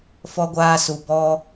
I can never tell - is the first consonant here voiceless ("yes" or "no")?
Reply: yes